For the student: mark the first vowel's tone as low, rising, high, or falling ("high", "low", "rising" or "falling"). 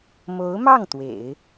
rising